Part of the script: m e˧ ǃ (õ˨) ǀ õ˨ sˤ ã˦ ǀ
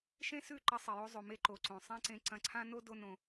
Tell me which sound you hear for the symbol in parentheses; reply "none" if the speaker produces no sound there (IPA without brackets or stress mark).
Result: o˨